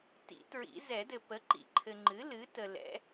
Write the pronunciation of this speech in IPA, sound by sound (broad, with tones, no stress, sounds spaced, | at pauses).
t ḭ˨˩˦ t ɹ ḭ˨˩˦ z ɛ˨˩˦ d ɘ˨ p ə˩˥ ǃ ḭ˨˩˦ ǃʰ ɘ˨ ŋ͡ǃ ɨ˩˥ l ɨ˩˥ t ə˨ l ɛ̰˩˥